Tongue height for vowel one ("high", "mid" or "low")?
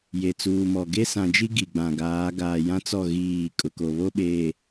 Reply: mid